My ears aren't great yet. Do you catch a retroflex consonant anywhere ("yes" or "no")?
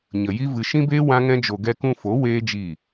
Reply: no